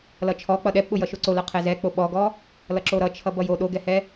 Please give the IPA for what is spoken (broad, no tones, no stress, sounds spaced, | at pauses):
l ʌ t͡ʃʰ ɔ k͡p ʌ ɗ ɛ p ɓ ʊ j ʌ ʃ o ǀ o l ʌ qʰ ɛ z ɛ k͡p o ɓ ɔ ɡ ɔ | l ʌ ǁ o ɾ ʌ t͡ʃʰ ʌ b ʌ j o ɗ o ɡ ɛ h ɛ